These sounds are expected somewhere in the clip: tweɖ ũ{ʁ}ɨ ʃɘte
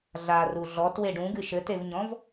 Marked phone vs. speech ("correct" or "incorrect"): incorrect